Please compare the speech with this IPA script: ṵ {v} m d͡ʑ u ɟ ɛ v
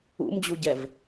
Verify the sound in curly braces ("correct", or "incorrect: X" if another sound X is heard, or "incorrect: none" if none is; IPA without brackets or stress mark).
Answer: incorrect: none